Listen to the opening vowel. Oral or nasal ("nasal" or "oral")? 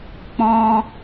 nasal